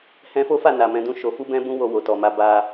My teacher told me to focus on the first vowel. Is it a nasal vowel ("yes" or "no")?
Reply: yes